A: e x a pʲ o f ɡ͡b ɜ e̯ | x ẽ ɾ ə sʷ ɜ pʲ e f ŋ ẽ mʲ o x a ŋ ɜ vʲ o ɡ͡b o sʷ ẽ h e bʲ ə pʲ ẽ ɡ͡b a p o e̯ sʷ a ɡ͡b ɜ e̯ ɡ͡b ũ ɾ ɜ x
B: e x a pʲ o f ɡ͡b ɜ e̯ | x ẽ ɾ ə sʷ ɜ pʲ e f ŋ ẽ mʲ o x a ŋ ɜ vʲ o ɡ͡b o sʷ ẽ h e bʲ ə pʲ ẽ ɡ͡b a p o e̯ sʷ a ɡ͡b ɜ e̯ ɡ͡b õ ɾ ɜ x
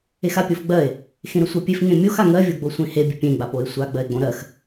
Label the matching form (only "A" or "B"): B